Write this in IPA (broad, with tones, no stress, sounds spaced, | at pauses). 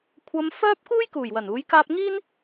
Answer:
kʷʰ ɐ˧ m f œː˥ p̚ k uː˥ j k uː˨˩ j w ɐ˨˩ n uː˨˥ j k aː˥ p̚ ŋ iː˥ n